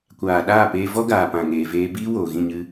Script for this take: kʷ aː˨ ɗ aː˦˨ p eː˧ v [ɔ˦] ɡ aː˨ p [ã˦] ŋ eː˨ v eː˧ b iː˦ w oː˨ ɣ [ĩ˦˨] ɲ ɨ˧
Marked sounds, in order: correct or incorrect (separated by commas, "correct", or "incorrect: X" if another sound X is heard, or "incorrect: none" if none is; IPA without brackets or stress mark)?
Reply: correct, incorrect: ã˨, correct